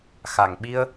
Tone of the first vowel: low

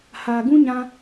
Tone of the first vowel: low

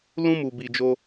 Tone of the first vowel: high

